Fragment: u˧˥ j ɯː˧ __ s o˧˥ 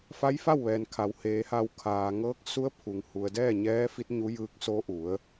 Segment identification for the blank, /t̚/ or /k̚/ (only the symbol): k̚